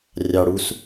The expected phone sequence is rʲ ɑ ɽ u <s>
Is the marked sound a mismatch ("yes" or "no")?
no